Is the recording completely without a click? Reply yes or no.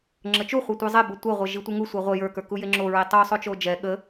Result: no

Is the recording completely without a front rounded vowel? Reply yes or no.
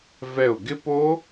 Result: yes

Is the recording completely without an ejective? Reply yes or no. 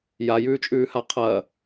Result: no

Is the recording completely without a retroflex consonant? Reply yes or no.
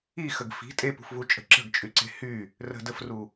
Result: yes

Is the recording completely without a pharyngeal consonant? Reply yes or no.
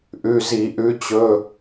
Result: yes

